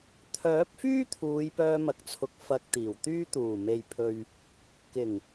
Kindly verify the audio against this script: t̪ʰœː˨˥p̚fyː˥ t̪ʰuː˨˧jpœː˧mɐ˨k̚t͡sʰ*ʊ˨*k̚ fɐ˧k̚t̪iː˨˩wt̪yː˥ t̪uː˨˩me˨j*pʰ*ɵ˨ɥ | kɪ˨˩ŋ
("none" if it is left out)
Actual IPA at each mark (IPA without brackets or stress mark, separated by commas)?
ʊ˨, pʰ